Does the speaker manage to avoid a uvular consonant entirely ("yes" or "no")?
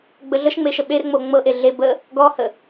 yes